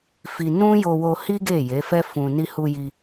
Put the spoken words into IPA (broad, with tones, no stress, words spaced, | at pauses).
fi˧ nũ˦ jo˧wo˧hi˦ ɡe˦˨ je˨˦fɛ˦fũ˧ ni˧hu˧ji˧